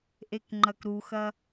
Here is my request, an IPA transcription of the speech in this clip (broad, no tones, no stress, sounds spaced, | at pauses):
ʔ e k ŋ͡ǃ ɐ k ɾ u x ɐ